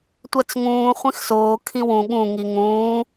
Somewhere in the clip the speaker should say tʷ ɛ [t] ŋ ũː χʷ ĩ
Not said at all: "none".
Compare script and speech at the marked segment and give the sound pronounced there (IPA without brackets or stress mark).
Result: t͡s